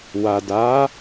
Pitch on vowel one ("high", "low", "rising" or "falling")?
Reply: low